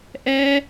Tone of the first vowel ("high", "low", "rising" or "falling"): high